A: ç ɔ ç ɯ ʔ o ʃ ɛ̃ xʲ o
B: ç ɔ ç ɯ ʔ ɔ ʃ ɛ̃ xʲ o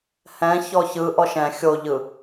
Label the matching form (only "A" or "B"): B